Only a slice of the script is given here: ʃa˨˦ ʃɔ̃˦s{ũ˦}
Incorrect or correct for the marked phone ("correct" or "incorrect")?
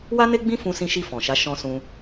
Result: correct